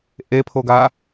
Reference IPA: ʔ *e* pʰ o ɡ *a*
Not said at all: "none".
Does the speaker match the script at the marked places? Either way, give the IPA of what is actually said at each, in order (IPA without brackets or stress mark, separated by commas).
e, a